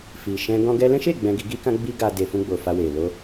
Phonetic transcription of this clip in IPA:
fi˨ ʃɛ̃˧ ɡɔ̃˦ ɡɛ˧lɛ̃˦ʃe˦˨ ɡ͡bɛ̃˧ɡi˧ɡi˦kã˦ ɡ͡bi˦ɡa˧ de˨fũ˧ɡ͡bo˨ fa˧we˨ lo˧

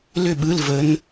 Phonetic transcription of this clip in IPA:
lʏ˥˨ɓɯ˧˥˧lvə˧˥n

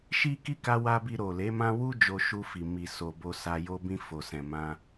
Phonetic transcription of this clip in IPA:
ʃi˦ki˦ ka˦wa˦ bi˧ɾo˨le˨˦mã˦ wu˦ d͡ʒo˧ʃu˧fi˨ mi˨so˨ bo˧sa˧ jo˧bĩ˧ fo˨sɛ̃˨ mã˧

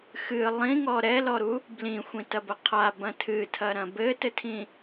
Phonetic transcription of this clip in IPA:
xɨ lˠĩŋɔ ɾɛlɔɾu | blĩxʷĩtɐbɐ qʰabɐ̃ tʰɨtʰɐɾɐ̃ bɘtɘtʰĩ

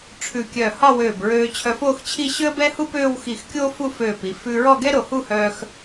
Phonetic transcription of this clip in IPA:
ʈ͡ʂʰʉ˧˩kʲœː˧˩ hɒ˥˧wøː˧˩bɹøː˧ t͡ɕʰœ˧foː˥˧xt͡ɕʰi˥˧ ɕø˥ə̯bɛ˥hu˥pøː˥˧w xi˧˩x kʲoː˥fu˥˧føː˧˩pi˩˧ fʉː˧ɹɔ˥˧ɡɛ˥ɾo˧˩ hu˥˧hœː˧x

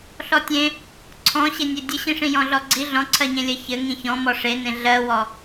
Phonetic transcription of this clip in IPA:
ɬɔtʲẽ | ǀʰɔ̃ɕenʲe dʲɘɕĩʂĩ jɔ̃ɮɔɡ͡ǀi ɮɔ̃ǀʰɜɲẽlʲɜ çɘ ŋĩçɔ̃mɔ ʂenẽ ɮɜwɔ

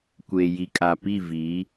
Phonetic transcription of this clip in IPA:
kʷeː˨ji˨kʼa˨pi˦˨ vi˨˦

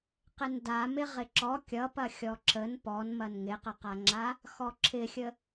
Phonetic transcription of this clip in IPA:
qɪnda mɪʁɪǁɔ kʲʌpɐxʲɔ ǁən pɔnmɐn ŋɪqəqaŋ͡ǁa | xɔǁʰɪxʲə

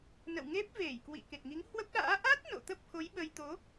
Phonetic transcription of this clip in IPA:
nə̰˧˨wŋe˦˥p̚ ve˧˩jkwḭ˧˨ ke˨˩t̚ŋi˨˦ŋhwə˦˥p̚ɗa̰ː˧˥ ʔa˦˥t̚ no̰˧˨t̪ə˦˥p̚xo˨˦j ɓə˧j t̪o˨˦

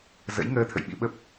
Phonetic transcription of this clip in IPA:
zə̰˧˥jŋəː˧t̪ʰə̰˧˨j ɓḭ˧˥ɓə˦˥p̚

